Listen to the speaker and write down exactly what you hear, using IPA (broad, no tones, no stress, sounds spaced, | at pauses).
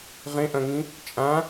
ʁ ẽ ʔ ɐ̃ ŋ ĩ | t͡ʃʼ ã